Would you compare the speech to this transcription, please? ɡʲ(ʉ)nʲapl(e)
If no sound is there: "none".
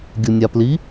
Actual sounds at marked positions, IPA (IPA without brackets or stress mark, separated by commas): u, i